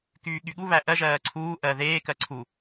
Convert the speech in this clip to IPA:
kyːɠyɠuβæ ʔɜʒɜː ǀʰuː ʔɜ ðeːkɜ ǀʰu

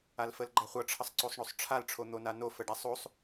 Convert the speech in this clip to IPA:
alfəlɡ͡ǃaχʷʌ ʈ͡ʂʰʌsˤǀosˤɳosˤʈ͡ʂʰal ʈ͡ʂʰon̪onano fəɖasˤosˤ

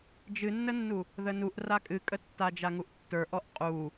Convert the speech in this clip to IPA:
d͡ʒɨnːənːu | ðənuʔ rakʼɨkʼə tːad͡ʒaŋuʔtːə˞ ʔɔʔqʼu

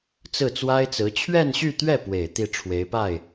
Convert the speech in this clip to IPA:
t͡sɹ̩˥˩t͡swa˥ɪ̯t͡sɹ̩˧˥ t͡ɕʰɥɛ˥˧nɕy˥˧t̪ɥɛ˥˩pwe˨˩ɪ̯ t̪i˥˩ʈ͡ʂʰwe˧˥ɪ̯pa˥˩ɪ̯

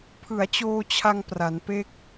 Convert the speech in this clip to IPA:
pʰɯ˩˦a̯t͡ɕoː˧t͡ɕʰa˧ŋ pra˩˦npe˥˩k̚

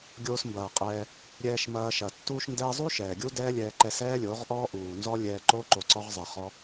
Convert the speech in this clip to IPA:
ɡʲoː˧smbɐː˨qʼɛː˧ | ɾʲɛː˧ʃmɐː˧ʃɐ˨ tːuː˧ʃndɛː˧zˤu˦ ʃɛː˨ɡʲu˦ dɛː˦lʲɛː˧ ǃɛ˧sɛː˦lʲo˨˦ʁ ʔɔː˦ ʔuː˨nzɔ˦ lʲɛː˧ǃo˦ ǃo˧ǀɔ˦ʁzˤɛ˧ χɔ˦

